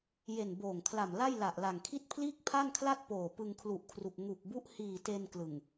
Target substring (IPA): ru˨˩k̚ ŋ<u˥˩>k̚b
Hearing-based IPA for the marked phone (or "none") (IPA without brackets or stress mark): u˨˩